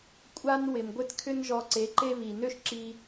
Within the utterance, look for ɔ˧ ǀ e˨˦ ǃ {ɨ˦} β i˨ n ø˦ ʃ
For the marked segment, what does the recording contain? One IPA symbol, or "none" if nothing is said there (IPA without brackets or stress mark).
e˦